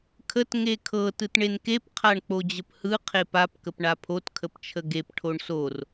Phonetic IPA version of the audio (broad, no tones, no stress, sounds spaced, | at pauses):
kʰ ə t ŋ e kʰ ɤ t ɯ t ɳ e n k e p qʰ a ɳ k͡p o d͡ʑ ə p h ɯ qʰ e p a p k ə p ɳ a pʰ o t kʰ ə p t͡ʃʰ ə ɡ e p ʈʰ o ɳ s o r